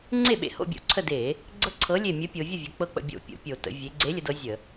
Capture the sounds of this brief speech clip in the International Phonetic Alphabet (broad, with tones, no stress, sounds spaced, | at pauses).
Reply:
ŋ͡ǀ e˥˩ ɓ ḛ˧˩ h o̰˥˩ bʲ o̰˧˩˧ ǀʰ ə˧˩ d e˧˩˧ | ɡ͡ǀ ɤ˦ ǀʰ ɤ˨˥ lʲ e˧˩ mʲ ə˨˥ pʲ o˩˧ vʲ ə˥˩ vʲ ə˩˧ k͡p ɤ˦ k͡p ə̰˥˩ bʲ o̰˥˩ pʲ o̰˧˩ pʲ o˧˩˧ t ə̰˩˧ vʲ e˩˧ ɡ͡ǀ e˨˥ lʲ ə˩˧ d ɤ˨˥ zʲ ə˧˩˧